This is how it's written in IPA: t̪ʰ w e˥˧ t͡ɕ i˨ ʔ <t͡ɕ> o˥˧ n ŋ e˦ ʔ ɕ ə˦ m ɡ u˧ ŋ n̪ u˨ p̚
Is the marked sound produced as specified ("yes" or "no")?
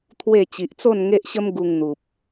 no